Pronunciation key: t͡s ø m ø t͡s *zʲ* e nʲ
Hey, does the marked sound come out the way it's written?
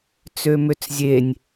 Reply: yes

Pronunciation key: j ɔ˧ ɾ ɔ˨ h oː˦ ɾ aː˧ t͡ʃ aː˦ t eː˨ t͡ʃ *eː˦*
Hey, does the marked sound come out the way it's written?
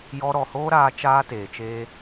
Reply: yes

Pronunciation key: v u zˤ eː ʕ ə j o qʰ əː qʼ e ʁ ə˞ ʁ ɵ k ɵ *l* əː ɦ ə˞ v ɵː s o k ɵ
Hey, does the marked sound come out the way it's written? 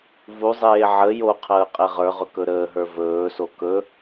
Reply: no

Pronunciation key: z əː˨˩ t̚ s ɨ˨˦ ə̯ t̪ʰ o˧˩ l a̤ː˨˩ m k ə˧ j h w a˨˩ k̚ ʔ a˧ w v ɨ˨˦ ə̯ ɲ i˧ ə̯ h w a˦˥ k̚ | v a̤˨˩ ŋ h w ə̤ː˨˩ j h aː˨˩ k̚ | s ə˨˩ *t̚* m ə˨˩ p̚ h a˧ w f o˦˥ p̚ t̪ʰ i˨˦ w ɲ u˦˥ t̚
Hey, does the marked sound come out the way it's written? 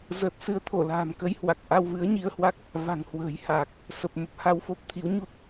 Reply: no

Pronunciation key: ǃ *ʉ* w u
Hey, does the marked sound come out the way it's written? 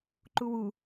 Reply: no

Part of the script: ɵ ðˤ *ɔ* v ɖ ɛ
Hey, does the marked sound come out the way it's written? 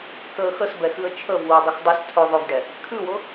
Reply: no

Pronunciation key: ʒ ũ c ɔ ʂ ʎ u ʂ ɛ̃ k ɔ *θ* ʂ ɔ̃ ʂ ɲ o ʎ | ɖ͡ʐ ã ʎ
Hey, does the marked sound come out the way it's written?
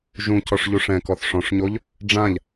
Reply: yes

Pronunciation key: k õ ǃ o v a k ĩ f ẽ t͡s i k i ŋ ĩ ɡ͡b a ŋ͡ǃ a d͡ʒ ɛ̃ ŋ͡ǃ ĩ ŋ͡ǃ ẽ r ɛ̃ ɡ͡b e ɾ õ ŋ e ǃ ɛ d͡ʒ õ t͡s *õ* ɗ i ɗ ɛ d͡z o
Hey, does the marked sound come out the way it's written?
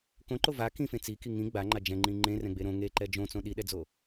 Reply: yes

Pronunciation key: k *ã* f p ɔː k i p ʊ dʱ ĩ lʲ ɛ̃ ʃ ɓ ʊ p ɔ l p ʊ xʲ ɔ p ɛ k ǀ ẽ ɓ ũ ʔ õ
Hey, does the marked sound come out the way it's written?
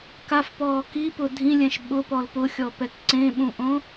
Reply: no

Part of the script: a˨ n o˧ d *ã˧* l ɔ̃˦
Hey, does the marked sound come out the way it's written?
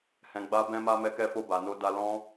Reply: no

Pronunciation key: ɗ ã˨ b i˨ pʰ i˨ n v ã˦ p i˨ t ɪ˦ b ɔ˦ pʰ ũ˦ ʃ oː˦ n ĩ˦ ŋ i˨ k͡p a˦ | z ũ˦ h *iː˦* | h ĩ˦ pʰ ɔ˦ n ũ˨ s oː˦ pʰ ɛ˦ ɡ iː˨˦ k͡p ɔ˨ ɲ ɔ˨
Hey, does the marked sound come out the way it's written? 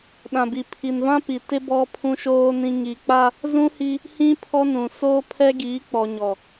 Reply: no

